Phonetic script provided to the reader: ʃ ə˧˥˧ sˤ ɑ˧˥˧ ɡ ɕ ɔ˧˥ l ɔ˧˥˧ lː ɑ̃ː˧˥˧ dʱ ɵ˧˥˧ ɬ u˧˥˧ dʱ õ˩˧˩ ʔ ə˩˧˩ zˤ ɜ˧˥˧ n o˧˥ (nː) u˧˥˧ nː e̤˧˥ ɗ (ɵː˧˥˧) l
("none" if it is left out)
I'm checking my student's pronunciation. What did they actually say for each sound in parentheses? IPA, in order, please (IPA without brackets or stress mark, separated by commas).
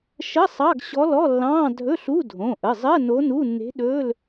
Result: n, ɵː˧˥˧